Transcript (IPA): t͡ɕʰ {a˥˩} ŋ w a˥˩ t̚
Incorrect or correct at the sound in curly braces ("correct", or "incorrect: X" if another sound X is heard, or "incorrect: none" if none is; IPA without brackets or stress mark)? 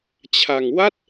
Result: incorrect: a˧